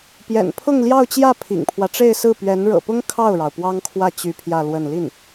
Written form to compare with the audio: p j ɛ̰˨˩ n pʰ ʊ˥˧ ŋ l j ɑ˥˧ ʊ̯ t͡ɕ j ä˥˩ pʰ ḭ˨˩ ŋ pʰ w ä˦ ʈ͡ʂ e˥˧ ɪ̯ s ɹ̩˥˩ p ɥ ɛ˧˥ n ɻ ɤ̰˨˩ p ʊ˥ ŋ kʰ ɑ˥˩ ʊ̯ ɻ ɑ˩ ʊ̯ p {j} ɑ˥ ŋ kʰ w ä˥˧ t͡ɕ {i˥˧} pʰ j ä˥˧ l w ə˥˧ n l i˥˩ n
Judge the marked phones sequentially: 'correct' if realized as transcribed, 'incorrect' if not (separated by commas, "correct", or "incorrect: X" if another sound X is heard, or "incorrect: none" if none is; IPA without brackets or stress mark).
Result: incorrect: w, incorrect: y˥˧